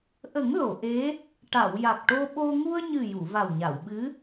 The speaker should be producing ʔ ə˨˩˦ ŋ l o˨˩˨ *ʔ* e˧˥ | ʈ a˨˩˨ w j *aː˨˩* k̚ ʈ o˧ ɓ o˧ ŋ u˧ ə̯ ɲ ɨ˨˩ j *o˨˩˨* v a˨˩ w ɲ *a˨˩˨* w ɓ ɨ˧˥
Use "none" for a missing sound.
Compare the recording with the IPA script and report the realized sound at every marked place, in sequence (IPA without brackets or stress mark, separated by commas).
ʔ, a˨˩, u˨˩˨, a˨˩˨